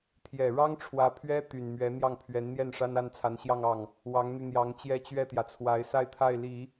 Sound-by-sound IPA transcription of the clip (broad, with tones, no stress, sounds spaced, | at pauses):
t̪ʰ j ɛ˨˩ ɻ ɑ˥ ŋ ʈ͡ʂʰ w ä˧˥ pʰ ɥ ɛ˥ t̪ y˨˩ n m ɥ ɛ˧˥ n̪ j ɑ˥˩ ŋ pʰ ɥ ɛ˧˥ n n̪ j ɛ˥˩ n ʂ a˥ n a˥ n t͡sʰ a˧˥ n ɕ j ɑ˥˧ ŋ ɑ˥˩ ŋ | w ɑ˧˥ ŋ n̪ y˧ n̪ j ɑ˧˥ ŋ t͡ɕ j ɛ˥˧ t͡ɕ ɥ ɛ˥˩ t̪ j ä˩ t͡sʰ w a˧˥ ɪ̯ s a˥˧ ɪ̯ t̪ʰ a˥˩ ɪ̯ l i˨˩˦